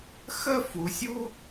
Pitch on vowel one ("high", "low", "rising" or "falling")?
high